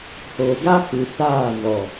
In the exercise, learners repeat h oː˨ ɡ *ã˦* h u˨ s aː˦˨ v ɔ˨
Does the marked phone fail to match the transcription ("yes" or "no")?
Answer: yes